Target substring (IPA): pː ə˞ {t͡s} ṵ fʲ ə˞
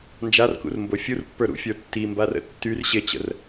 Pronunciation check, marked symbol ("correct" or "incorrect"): incorrect